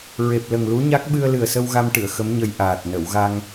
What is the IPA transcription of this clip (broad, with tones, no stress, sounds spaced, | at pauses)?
ɹ e˨˩ p̚ l ə˨˩ ŋ l u˧˥ ɲ a˦˥ k̚ ɓ ɨ˧ ə̯ l ɨ˨˩ ə̯ s ə˧ w ɣ a˧ m ʈ ɨ˨˩˨ ə̯ x ə˧˥ m ɲ ə˧ j ʔ aː˨˩ t̚ n ə˨˩˨ w ɣ a˧ ŋ